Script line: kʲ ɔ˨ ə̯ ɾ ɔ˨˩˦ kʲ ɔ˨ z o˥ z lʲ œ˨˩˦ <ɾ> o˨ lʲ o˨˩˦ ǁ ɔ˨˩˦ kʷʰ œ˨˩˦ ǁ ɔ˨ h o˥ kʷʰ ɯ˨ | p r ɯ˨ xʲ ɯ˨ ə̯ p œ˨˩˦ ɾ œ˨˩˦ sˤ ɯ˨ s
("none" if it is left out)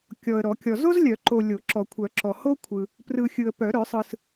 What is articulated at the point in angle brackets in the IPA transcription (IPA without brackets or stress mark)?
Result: ǃ